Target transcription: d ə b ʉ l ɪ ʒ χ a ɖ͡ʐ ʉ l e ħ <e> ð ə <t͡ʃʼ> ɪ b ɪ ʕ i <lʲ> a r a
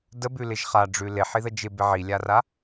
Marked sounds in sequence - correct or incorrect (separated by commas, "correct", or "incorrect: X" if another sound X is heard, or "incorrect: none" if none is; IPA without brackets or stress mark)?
incorrect: i, incorrect: d͡ʒ, correct